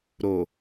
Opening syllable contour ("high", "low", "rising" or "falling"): low